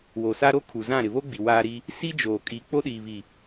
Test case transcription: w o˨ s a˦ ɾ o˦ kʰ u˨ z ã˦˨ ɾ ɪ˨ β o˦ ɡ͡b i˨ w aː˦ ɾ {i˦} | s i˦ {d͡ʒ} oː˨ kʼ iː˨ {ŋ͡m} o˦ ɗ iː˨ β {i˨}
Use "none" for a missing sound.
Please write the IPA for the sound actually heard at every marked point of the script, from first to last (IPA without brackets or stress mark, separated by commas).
i˦, d͡ʒ, k͡p, i˨